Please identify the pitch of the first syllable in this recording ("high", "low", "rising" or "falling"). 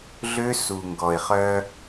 high